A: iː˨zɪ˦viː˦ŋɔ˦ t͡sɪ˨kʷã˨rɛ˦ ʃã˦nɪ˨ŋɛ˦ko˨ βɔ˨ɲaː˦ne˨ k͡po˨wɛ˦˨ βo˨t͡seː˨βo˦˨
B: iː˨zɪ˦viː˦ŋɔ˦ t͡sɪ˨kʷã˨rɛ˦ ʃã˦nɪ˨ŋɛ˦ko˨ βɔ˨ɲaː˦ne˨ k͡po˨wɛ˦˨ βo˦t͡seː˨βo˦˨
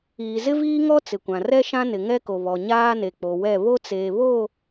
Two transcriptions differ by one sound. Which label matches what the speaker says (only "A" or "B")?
B